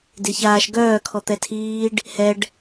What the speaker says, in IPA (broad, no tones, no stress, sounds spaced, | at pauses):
d e ç aː ʃ ɡ œː kʰ ɔ t̪ ɛ tʰ iː ɖ | h ɛ ɖ